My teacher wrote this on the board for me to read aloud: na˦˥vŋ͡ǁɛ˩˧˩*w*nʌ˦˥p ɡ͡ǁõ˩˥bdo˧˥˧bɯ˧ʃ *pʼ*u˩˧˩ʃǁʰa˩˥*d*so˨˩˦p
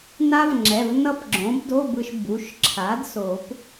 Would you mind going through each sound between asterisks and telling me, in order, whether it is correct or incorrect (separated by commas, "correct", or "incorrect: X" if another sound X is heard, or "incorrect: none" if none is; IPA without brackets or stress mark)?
incorrect: v, incorrect: b, correct